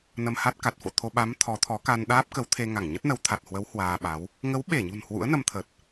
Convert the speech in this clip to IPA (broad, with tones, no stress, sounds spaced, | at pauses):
n ə˧ m h a˦˥ t̚ k a˨˩ t̚ f o̰˧˨ t̪ʰ o˧ ɓ a˨˦ m t̪ʰ ɔ˨˦ t̪ʰ ɔ˨˦ k a˧ n ɗ aː˦˥ p̚ k ə˨˦ w t̪ʰ e˧ ŋ a˧˩ ŋ ɲ ə˦˥ t̚ n ə˨˦ w t̪ʰ a˨˩ t̚ h w ə˨˦ w h w aː˧ ɓ a˨˦ w | ŋ ə˨˦ w ɓ e˧˩ ɲ ṳ˨˩ n h w ṵ˧˥ ə̯ n ə˧ m t̪ʰ ə˨˩ t̚